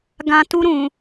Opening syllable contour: low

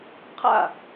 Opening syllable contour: falling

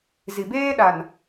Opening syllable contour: low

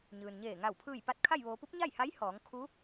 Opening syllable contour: low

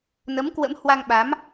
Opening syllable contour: rising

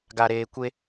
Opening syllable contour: high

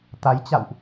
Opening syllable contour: rising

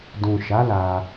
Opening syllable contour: low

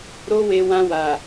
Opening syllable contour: high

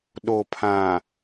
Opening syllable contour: low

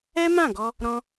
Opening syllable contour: high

